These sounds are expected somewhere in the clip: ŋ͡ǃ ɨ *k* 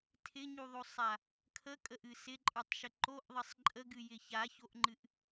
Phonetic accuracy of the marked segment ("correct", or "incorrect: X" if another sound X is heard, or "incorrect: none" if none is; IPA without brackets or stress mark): incorrect: ʔ